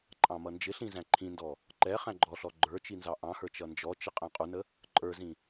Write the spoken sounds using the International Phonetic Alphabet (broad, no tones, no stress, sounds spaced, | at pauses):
ǃʼ ɑ̃ m ʌ n d͡ʒ ɪ ɬ ĩ z æ̃ ǃʰ ĩ n d ɔ | ǃ ɛ χ æ̃ ɡ͡ǃ ɔ ɬ ɔ ɡ͡ǃ ə˞ t͡ʃ i n z ɑ ʔ ɑ̃ h ə˞ t͡ʃ ʌ n d͡ʒ ɔ t͡ʃ ɪ qʼ æ̃ qʼ u n ə | ǃʼ ə˞ z ĩ